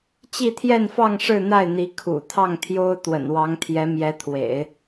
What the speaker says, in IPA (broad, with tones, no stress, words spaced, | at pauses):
t͡ɕi˥˧t̪ʰjɛ˥˧nfɑ˥˧ŋ ʂɻ̩˥˧n̪a˥˩ɪ̯n̪i˧˥ kʰṵ˨˩ t̪ʰɑ˥˩ŋt̪ʰjo˥ʊ̯ t̪wə̰˨˩nwɑ˧˥ŋt̪ʰjɛ˧˥ mjɛ˧˥t̪ʰwḛ˨˩˦ɪ̯